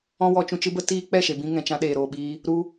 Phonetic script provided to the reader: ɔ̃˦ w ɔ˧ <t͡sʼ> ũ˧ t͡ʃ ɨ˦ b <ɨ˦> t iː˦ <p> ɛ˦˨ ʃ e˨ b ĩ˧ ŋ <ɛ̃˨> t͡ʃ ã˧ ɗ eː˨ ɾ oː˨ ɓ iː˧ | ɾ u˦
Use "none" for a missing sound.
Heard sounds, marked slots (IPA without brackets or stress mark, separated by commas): t͡ʃ, ə˦, k͡p, ɛ̃˨